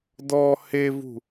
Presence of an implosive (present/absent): absent